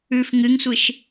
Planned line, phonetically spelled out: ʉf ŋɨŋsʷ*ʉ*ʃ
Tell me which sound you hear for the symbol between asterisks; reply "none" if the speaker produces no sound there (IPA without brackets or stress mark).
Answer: ɨ